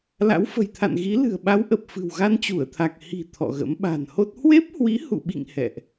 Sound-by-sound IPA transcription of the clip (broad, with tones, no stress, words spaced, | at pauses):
la̰˧˥wfə̤˨˩jt̪ʰa̰˧˨nɣi˨˦ lɨ̤˨˩ə̯ɓa˨˦w ʔə˨˩p̚ fɨ̤˨˩wɣa˧nt͡ɕu˧˩ə̯t̪ʰa˨˩k̚ hi̤˨˩ t̪ʰɔ̰˧˨ɣə̰˧˥m ɓa̤˨˩nho˦˥t̚ hwe˦˥p̚hwi˨˦hṵ˧˨ɓḭ˧˨ŋ hɛ̰˧˨ʔ